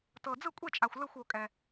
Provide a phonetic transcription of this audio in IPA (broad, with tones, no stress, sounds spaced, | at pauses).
t ɤ˨ d͡z ɯ˥˨ kʷʼ e˥˨ t͡ʃʼ a˨ xʷ l ɯ˥˨ xʷ o˨ kʼ ɛ˨